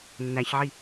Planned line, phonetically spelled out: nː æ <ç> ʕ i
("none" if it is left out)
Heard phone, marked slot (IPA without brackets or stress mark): ç